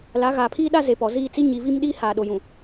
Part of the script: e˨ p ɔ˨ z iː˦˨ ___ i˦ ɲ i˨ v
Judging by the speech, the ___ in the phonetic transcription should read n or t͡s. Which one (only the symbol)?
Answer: t͡s